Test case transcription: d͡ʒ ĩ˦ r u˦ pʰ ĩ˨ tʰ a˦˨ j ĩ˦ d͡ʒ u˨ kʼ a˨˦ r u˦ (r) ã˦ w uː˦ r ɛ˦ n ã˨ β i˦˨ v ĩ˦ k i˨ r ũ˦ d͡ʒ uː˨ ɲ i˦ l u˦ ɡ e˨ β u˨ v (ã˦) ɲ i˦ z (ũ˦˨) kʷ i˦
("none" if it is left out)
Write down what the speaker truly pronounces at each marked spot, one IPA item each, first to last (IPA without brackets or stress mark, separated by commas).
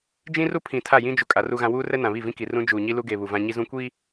ɣ, ã˦, ũ˦